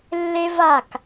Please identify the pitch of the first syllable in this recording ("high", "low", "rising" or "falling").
high